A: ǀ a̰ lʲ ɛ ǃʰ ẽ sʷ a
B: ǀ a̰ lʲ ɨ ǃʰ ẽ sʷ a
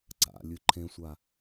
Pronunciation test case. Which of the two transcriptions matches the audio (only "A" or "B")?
B